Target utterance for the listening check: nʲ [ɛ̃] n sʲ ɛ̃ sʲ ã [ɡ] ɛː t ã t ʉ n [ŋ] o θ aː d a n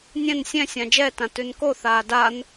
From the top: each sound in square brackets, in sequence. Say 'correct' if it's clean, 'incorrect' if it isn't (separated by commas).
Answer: correct, incorrect, incorrect